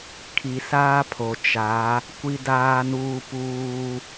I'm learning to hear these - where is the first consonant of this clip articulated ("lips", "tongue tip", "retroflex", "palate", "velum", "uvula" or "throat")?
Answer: velum